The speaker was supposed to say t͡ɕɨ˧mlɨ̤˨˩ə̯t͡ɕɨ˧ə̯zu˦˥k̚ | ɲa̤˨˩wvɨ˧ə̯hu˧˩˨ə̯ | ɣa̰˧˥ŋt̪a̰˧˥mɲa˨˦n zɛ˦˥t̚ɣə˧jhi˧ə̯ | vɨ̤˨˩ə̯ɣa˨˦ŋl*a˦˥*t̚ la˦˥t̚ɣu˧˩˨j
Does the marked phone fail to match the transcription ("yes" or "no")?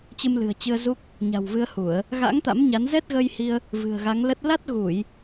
yes